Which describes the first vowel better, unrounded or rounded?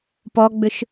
rounded